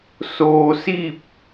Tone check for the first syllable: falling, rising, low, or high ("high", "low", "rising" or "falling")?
low